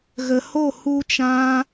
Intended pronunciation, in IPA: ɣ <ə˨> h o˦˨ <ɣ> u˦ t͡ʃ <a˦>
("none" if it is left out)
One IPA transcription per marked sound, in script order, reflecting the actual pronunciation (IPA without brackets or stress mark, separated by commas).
ə˨, h, ã˦